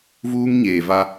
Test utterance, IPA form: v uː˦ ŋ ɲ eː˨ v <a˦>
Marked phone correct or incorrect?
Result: correct